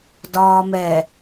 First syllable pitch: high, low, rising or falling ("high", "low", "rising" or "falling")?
low